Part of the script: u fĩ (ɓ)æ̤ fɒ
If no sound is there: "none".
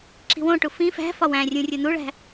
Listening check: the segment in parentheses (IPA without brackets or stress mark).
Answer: f